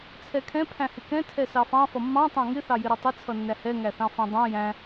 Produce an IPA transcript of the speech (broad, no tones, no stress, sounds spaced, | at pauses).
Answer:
t͡sʰ ɛ kʰ ɛ̃ pʰ æ̃ h ɪ k ɛ̃ tʰ ɛ s ɑ f ɑ̃ f ʌ mː ɑ̃ tˤ ɑ̃ ŋ ɪ θ ɑ j ɪ ɾ ʌ tˤ ɪ t͡sʰ ʌ nː æ h ɛ ŋ æ θ ɑ̃ f æ̃ dˤ æ̃ j æ̃